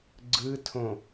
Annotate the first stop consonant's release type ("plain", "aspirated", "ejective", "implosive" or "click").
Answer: click